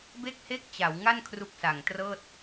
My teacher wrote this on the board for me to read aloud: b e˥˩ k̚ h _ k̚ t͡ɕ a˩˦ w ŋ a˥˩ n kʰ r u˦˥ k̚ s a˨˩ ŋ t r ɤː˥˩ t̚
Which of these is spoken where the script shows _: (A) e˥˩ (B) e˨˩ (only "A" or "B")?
A